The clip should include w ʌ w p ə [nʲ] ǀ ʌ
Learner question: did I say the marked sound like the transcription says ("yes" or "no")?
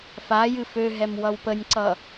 yes